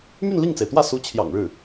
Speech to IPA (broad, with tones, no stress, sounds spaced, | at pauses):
m y˥˧ n l i˥˩ ŋ t͡s e˩ ɪ̯ t̪ w ä˥˩ s u˧˥ t͡ɕʰ j ɑ̰˨˩ ŋ ɻ ɻ̩˥˩